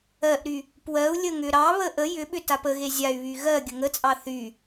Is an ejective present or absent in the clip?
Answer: present